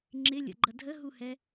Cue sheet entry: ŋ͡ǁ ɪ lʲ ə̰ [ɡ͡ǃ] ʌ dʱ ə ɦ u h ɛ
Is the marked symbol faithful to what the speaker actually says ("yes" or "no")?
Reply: yes